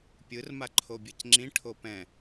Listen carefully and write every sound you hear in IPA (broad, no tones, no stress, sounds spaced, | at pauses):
pʲ ɯ r m a ǃʰ o bʲ ɤ c ŋ͡ǁ ĩ ʈʰ o p ɛ̃